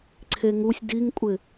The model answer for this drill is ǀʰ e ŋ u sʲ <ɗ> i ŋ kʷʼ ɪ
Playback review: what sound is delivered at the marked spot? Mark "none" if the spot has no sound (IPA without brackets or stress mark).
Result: d